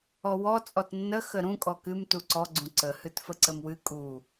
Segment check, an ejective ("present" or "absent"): present